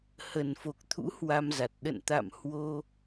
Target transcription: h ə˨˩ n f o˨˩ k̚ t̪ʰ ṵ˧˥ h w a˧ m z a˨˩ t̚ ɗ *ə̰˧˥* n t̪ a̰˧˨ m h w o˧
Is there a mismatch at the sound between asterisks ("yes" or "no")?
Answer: yes